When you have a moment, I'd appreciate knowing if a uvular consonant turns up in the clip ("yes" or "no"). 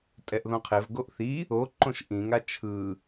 yes